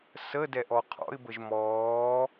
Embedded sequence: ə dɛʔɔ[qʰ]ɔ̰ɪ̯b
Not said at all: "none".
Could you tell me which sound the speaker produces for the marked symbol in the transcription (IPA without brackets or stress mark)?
qʰ